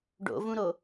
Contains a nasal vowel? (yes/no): yes